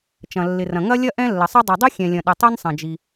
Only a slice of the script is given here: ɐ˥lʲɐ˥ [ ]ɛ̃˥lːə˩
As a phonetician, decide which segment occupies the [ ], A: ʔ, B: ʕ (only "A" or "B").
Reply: A